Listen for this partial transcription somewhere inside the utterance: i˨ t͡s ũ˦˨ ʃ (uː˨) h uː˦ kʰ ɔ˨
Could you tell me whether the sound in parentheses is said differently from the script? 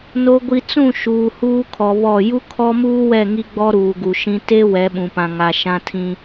no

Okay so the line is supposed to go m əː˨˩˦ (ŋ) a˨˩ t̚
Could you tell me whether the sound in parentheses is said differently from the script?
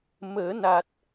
yes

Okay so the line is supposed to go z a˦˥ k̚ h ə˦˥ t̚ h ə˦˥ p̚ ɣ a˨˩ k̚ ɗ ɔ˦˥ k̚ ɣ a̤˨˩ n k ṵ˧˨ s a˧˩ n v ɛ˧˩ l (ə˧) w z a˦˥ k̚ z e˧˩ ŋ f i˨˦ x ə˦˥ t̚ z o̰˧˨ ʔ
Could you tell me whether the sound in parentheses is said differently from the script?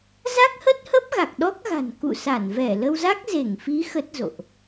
no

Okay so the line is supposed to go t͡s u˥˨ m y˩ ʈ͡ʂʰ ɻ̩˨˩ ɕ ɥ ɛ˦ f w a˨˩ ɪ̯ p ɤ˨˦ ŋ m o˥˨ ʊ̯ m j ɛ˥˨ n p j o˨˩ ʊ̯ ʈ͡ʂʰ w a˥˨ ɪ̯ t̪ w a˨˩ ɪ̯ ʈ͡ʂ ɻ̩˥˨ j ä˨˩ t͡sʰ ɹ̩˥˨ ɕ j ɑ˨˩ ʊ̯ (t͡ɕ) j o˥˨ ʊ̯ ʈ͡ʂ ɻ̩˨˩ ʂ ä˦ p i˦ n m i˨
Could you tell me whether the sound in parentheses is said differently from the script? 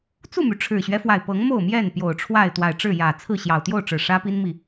yes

